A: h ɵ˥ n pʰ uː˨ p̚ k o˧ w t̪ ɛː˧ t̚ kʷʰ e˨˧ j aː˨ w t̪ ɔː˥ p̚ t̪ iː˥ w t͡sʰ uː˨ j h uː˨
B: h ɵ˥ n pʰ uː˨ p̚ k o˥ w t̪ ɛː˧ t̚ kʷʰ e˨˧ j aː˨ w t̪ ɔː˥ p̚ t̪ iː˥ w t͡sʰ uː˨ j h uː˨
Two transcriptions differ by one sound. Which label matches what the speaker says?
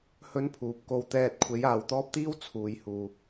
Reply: A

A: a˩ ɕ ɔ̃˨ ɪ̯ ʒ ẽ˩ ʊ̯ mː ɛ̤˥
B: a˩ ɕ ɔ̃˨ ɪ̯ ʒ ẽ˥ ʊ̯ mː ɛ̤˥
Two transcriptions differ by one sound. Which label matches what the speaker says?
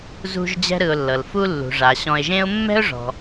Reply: B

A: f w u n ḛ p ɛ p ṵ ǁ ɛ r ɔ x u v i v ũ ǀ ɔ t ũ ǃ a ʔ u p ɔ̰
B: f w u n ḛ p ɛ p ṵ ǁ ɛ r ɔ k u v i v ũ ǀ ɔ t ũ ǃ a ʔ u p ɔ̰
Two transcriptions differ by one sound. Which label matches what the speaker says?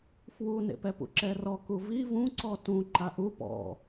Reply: B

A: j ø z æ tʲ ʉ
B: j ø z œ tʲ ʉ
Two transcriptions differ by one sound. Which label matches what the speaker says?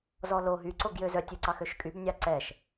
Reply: B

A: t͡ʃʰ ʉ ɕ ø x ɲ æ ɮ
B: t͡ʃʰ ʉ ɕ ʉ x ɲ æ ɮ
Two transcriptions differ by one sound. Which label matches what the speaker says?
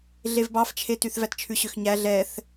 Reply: A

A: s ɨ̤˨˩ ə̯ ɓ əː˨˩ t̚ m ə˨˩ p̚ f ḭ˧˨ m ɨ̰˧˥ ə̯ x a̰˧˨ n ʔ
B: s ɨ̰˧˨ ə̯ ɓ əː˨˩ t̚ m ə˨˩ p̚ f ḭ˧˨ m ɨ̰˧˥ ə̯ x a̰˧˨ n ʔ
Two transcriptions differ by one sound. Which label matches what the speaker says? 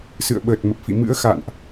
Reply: B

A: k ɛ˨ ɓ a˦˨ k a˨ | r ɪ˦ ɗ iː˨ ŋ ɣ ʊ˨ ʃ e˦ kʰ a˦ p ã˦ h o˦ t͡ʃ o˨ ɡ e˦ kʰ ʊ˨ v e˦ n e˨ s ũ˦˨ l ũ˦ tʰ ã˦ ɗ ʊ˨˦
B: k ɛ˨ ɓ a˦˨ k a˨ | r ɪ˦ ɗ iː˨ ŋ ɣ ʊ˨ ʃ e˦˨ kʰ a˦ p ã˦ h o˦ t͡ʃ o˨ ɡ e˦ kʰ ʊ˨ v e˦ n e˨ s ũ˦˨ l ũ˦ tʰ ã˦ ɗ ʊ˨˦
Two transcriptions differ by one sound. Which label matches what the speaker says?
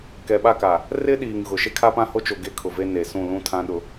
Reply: A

